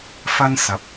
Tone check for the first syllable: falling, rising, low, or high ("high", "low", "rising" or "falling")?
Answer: high